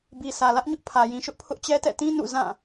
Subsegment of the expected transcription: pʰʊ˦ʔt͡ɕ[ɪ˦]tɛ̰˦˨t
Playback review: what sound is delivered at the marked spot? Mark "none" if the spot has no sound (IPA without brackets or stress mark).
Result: ɛ˦